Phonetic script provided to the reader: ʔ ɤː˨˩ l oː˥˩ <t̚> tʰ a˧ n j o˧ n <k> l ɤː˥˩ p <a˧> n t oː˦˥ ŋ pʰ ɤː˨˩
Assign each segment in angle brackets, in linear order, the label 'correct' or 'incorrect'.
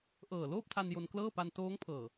incorrect: p̚, correct, correct

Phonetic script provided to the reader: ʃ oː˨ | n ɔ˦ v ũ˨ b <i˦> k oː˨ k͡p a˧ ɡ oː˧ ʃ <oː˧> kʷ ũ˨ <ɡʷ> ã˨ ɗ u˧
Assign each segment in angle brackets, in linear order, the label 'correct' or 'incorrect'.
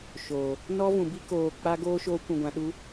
correct, correct, correct

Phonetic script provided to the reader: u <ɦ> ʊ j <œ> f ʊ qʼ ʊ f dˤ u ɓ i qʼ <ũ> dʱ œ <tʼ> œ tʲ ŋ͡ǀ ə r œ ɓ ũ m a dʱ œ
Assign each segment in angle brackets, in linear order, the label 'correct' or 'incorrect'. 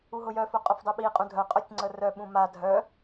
correct, correct, correct, incorrect: qʼ

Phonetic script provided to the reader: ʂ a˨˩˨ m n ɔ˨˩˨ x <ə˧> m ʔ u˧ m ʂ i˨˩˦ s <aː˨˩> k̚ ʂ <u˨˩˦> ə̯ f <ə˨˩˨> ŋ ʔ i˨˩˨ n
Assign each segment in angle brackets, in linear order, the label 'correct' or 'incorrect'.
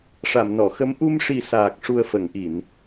incorrect: ə˧˥, correct, incorrect: u˨˩, correct

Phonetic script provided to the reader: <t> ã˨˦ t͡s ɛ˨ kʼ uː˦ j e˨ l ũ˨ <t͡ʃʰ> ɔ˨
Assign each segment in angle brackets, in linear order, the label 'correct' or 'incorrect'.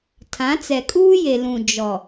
incorrect: tʰ, incorrect: d͡ʒ

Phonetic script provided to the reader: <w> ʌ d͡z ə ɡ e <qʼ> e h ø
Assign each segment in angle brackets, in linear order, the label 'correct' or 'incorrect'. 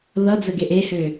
incorrect: ð, incorrect: ʔ

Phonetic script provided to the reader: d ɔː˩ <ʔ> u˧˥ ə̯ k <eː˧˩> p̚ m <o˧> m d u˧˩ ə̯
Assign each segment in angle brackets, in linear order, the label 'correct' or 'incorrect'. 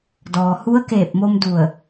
incorrect: h, correct, correct

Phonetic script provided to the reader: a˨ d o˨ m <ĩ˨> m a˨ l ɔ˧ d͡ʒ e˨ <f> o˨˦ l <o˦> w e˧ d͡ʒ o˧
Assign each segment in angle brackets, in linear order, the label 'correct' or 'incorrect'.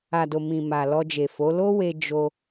correct, correct, correct

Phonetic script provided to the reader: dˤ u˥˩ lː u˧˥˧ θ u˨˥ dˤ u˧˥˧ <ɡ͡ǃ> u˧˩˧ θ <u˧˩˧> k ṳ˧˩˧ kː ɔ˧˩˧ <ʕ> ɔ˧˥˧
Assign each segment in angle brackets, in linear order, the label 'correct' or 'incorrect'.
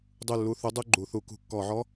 correct, correct, correct

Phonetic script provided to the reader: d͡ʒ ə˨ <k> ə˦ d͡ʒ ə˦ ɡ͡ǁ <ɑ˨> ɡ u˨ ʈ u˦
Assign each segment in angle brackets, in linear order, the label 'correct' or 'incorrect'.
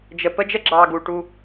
incorrect: p, correct

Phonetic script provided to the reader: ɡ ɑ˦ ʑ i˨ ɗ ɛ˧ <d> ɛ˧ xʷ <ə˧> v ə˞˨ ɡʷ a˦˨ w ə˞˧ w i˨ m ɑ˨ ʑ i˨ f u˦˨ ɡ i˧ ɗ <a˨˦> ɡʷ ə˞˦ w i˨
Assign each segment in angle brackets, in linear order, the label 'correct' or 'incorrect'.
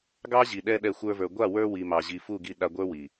incorrect: ɗ, incorrect: ə˞˧, incorrect: a˧

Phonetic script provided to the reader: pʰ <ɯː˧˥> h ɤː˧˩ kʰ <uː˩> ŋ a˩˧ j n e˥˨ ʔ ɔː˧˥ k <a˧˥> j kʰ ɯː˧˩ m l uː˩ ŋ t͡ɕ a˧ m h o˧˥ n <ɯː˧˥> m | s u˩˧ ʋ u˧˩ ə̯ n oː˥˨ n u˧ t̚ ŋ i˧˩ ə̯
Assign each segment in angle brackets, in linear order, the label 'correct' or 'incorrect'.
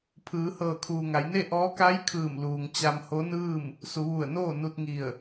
incorrect: ɯː˩˧, correct, correct, incorrect: ɯː˥˨

